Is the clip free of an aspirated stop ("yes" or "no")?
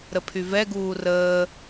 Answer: no